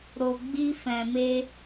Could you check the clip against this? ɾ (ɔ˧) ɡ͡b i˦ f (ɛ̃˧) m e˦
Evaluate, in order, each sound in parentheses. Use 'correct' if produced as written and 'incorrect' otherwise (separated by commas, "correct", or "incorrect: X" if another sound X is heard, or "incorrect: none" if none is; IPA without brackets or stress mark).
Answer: incorrect: o˧, correct